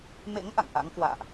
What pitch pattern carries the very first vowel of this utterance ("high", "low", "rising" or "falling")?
rising